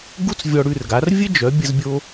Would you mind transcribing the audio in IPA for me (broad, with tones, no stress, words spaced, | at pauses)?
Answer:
ɡu˥t͡s vʲɔ˧ɽʉ˥˩rɡa˩˥r vʲɘ˥d͡ʒœ˩˥ bʲə˧zbʲo˧